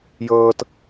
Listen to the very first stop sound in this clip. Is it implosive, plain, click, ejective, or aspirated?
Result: plain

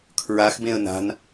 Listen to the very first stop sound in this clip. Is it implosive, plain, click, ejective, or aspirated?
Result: aspirated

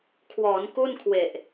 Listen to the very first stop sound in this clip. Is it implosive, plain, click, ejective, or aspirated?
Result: aspirated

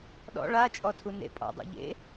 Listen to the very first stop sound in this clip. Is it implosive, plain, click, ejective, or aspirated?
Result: implosive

